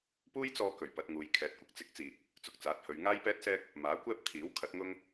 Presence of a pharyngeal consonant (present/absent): absent